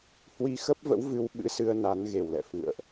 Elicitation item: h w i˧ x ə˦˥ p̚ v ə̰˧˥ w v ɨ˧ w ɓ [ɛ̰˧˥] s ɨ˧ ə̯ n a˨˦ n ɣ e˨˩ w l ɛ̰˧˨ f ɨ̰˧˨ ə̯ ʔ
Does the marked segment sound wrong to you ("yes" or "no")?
yes